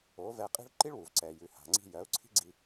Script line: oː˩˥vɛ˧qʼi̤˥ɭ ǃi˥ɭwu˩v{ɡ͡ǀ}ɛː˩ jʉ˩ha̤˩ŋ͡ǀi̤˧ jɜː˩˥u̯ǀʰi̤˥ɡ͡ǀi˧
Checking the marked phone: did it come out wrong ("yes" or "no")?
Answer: yes